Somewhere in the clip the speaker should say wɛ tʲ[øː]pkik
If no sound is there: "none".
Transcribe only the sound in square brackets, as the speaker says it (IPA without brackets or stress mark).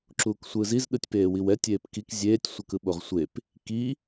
eː